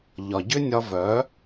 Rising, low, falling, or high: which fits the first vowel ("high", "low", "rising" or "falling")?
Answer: low